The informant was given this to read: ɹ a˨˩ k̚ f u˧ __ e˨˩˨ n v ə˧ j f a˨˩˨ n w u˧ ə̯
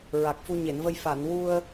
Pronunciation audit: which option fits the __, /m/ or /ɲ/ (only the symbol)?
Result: ɲ